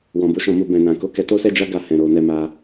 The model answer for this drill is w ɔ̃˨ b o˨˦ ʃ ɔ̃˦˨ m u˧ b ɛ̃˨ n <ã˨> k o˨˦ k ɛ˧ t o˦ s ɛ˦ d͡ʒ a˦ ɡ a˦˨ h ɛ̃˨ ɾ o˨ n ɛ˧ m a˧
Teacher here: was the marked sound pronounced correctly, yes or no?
yes